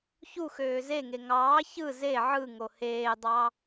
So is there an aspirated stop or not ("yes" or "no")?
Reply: no